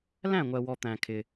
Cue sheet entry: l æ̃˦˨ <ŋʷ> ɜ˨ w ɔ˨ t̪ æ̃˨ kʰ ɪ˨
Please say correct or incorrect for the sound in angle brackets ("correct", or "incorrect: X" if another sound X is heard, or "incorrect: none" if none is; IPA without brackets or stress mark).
correct